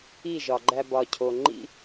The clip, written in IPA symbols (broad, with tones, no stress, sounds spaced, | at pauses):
i˦˨ ʒ ɒ˨ ɡ͡ǃ æ˧ b ɒ˨ cʰ o˨ ŋ͡ǃ ḭ˦